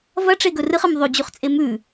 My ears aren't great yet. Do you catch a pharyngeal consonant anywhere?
no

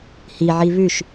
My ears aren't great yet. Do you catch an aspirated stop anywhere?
no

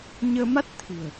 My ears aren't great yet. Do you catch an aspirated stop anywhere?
yes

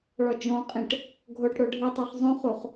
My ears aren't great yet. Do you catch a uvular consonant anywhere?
yes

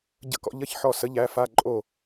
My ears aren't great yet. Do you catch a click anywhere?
yes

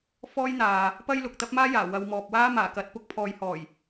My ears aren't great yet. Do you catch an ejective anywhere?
no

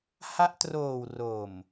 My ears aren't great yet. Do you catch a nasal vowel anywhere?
no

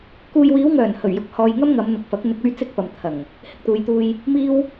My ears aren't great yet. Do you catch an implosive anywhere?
no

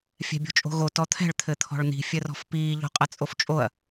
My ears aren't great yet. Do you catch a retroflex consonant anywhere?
yes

